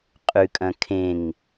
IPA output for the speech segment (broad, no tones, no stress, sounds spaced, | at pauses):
qʼ ʉ kʼ ɐ̃ kʰ ẽ ŋ